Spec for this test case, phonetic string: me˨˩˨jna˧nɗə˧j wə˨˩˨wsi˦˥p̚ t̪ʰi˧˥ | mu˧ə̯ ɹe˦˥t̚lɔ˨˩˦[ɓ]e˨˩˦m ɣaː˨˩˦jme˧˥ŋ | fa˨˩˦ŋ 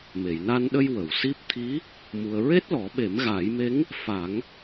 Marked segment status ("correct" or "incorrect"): correct